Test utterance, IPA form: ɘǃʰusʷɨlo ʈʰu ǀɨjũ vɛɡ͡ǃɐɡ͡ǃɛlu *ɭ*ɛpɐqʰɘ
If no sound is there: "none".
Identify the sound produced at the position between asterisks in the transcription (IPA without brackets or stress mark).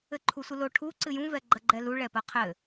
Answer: ɭ